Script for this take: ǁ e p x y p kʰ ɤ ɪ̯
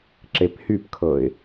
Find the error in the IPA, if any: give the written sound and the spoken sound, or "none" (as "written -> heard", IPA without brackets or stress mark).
x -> h